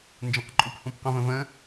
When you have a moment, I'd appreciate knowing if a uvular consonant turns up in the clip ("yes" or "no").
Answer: yes